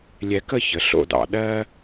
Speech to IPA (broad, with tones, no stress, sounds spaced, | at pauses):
lʲ ɛ˧ k ə˥˧ ç ə˩˧ ɬ o̰˥˧ d ɑ̰˧ ɗ ɜ˥